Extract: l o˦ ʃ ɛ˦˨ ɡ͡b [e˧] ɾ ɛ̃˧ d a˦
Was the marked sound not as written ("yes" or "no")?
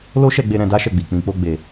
no